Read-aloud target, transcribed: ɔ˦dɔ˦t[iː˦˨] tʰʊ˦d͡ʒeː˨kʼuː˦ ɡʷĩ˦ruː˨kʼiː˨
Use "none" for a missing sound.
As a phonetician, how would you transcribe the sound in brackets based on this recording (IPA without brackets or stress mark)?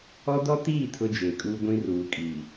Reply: iː˦˨